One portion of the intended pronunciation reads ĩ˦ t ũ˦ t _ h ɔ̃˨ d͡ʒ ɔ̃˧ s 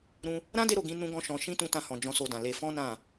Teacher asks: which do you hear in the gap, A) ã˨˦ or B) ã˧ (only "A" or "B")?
B